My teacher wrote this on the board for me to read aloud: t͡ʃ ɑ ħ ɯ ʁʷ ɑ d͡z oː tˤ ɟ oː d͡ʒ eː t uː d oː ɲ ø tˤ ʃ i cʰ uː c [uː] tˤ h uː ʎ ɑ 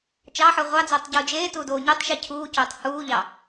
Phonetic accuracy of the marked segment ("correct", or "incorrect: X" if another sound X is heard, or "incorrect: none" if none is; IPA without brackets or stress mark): incorrect: oː